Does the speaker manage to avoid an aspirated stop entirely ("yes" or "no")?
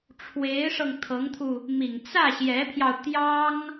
no